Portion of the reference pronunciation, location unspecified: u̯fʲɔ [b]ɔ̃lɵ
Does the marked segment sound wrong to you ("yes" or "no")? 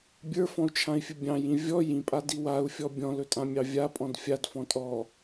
yes